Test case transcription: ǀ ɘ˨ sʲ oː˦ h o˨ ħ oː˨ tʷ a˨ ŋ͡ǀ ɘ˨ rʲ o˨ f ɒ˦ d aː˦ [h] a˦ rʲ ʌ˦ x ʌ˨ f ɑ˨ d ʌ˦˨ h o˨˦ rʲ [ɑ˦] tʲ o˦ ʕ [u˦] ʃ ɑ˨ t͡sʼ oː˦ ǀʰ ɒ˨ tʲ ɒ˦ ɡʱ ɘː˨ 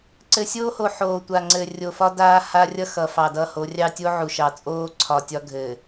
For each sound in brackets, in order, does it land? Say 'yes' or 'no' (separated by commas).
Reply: yes, yes, no